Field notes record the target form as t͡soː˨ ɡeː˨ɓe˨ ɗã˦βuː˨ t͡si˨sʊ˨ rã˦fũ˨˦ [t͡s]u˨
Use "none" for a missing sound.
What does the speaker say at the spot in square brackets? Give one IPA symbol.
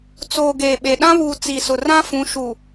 ʃ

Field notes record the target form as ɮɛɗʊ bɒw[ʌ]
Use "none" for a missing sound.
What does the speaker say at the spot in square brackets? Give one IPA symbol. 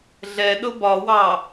ɑ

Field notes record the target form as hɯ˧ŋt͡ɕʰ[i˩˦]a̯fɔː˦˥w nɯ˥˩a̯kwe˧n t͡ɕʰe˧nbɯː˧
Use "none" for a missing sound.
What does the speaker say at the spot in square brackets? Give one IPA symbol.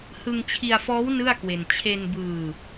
i˧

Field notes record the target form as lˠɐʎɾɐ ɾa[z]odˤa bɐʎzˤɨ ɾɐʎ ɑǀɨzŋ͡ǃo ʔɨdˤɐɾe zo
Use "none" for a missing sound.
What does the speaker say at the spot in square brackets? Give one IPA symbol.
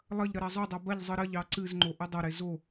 zˤ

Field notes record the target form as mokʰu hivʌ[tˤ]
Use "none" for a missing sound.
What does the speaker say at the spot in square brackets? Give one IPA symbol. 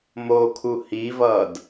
d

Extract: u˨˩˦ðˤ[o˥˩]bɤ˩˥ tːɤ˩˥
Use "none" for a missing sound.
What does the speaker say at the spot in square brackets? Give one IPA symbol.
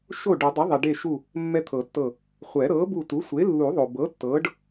o˩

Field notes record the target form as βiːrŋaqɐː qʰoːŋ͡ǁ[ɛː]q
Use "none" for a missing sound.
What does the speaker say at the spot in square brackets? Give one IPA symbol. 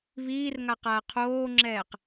ɛː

